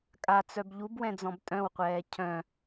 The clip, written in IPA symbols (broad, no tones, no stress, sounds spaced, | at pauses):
kʼ a t͡s œ b ʎ u b w ɛ̃ d͡z ɔ̃ b tʼ œ̃ w qʷ ɛː cʰ œ̃